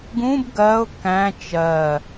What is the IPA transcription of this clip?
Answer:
ɡũb ɡɜʊ̯ kæ̃ t͡ʃɜ

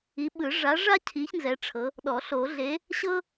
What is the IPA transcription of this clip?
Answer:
i˨˥ ɓɯ˨˩˦ʐa˨˥ʐa˥ cʰi˨˥ç nzɛ˨˥ʈ͡ʂʰɤ˨˥ | ɗɔ˨˩˦ɬo˨˩˦ɮe˨˥ | ɕɤ˥

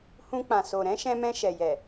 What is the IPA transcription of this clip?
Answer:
hũ˧k͡pã˨ so˨ɾɛ̃˨˦ʃɛ̃˧mɛ̃˧ ʃɛ˨jɛ˨

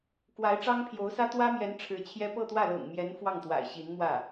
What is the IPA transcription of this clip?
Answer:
kwa˧˥ɪ̯ʈ͡ʂɑ˥ŋpʰjo˧˥ʊ̯sä˥ t̪wä˥mjɛ˧˥n ʈ͡ʂʰɻ̩˧˥t͡ɕʰjɛ˥ pɤ˥˧t̪wä˥˩lɤ̰˨˩ŋmjɛ˧˥n fwɑ˥˩ŋt̪wa̰˨˩ɪ̯ɕi˧˥nmwä˥˩

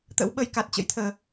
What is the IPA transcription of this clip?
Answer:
t̪ə̰˧˥w ɓə˧j ka˨˩t̚t͡ɕə̰˧˥jt̪ʰəː˨˩

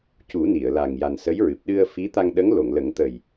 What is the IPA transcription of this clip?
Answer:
cu˨˩˦ ni˨˩˨ə̯la˨˩ŋ ja˨˩nsə˧˥jɹɨ˨˩p̚ ɗɨ˧ə̯fi˧˥ t̪a˧ŋɗə˧˥ŋ lo˨˩˨ŋlə˨˩˦ŋ t̪ə˨˩j

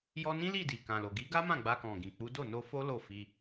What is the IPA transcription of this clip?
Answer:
jɔ˧nĩ˦li˦˨ di˨kã˨lo˨ ɡi˨˦ɡa˦mã˦˨ ɡ͡ba˧kɔ̃˨ɡĩ˨ k͡pu˨˦ do˦˨no˧fo˦ lo˦˨fi˧

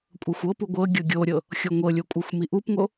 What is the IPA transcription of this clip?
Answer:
kʷʼɤxʷɤpu ɡʷɤɡʲɤ ɡʲoɾʲɤ | xʲoŋʷɤlʲo kʷʼɤxʷmiʔupŋo

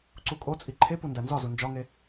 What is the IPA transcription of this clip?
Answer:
ǀukʼot͡sʼi ǃʰepu ndænzɒzu nd͡ʒɒŋe

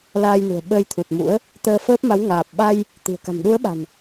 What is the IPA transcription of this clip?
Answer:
laː˧jnṳ˨˩ə̯ ɓəː˧jt̪ʰu˨˩t̚mṵ˧˥ə̯ | t̪əː˧fəː˦˥p̚ma˨˦w ŋaː˨˩p̚ɓa˧j | t̪i̤˨˩ə̯ka̤˨˩m ɗu˨˦ə̯ɓa̤˨˩n

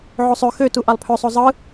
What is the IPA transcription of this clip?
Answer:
ʕosˤø xøtu ʔɑlˠpʰøsˤo zˤɯ

